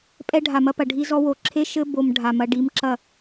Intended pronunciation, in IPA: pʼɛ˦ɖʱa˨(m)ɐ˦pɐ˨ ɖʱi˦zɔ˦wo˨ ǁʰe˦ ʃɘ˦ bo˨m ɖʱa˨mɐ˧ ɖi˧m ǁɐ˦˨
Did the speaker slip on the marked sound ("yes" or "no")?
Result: no